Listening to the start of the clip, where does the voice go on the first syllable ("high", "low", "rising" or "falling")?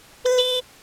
high